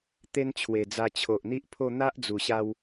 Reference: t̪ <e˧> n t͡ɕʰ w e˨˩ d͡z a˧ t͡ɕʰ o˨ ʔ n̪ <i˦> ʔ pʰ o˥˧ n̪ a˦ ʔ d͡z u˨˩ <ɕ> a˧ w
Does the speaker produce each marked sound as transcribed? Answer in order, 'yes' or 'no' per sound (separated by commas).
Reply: no, yes, yes